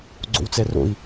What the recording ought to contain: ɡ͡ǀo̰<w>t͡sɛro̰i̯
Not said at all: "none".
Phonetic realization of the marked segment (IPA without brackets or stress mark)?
w